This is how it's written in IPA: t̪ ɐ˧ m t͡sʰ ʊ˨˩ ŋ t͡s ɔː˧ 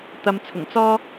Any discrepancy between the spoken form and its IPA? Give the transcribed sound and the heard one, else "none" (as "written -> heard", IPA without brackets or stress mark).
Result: none